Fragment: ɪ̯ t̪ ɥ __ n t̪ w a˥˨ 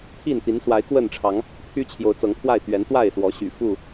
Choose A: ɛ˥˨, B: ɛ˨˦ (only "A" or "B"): B